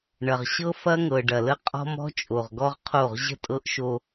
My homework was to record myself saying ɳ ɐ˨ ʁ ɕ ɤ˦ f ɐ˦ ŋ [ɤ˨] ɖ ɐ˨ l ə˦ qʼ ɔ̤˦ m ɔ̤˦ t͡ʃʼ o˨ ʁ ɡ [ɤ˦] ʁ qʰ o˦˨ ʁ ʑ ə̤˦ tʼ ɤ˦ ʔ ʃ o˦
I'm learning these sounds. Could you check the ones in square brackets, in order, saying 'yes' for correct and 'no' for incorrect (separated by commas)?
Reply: yes, no